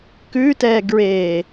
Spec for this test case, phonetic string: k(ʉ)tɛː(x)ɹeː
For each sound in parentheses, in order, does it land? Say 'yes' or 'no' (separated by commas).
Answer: yes, no